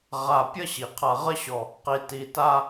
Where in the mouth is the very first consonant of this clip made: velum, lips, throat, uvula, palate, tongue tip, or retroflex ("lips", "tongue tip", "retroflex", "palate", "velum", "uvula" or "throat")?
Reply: uvula